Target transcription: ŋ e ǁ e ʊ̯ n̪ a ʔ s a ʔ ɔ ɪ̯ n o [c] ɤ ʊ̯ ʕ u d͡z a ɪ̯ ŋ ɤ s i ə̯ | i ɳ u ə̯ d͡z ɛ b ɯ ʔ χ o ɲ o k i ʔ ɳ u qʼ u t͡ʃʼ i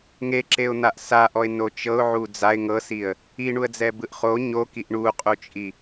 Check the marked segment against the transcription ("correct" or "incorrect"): incorrect